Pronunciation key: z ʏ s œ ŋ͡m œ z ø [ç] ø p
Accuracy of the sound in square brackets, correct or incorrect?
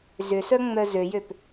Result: incorrect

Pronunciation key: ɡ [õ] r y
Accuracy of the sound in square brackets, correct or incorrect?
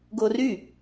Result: incorrect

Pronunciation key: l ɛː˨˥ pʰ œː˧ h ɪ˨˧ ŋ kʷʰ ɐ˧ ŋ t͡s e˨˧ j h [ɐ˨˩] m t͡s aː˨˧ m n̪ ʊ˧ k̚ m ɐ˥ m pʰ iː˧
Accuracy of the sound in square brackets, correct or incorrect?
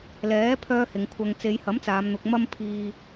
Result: incorrect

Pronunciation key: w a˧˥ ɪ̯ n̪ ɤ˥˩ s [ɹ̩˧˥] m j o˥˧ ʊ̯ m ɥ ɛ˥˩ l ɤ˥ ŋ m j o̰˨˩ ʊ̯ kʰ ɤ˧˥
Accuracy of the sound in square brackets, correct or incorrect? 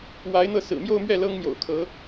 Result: incorrect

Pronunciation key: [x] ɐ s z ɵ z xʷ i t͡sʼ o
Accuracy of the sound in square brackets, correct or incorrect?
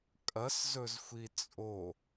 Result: incorrect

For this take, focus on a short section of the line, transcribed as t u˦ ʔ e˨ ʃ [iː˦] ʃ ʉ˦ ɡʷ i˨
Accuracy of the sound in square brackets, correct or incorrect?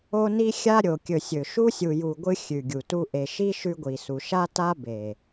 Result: incorrect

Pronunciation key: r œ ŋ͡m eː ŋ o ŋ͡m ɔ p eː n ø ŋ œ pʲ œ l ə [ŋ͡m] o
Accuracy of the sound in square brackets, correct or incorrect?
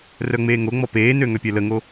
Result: incorrect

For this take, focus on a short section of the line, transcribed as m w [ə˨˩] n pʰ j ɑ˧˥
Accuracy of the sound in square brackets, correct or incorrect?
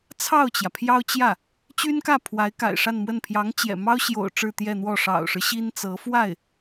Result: incorrect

